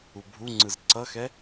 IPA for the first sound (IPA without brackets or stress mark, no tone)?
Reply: u